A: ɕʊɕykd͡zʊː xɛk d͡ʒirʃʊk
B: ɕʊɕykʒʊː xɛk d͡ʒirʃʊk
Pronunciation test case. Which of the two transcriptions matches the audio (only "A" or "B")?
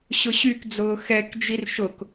A